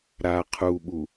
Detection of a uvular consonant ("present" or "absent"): present